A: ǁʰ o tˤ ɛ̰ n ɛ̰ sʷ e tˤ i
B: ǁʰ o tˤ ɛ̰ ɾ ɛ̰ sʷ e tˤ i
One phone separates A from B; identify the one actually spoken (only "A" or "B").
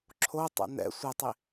A